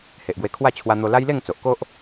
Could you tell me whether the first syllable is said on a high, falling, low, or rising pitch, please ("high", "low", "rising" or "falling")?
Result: low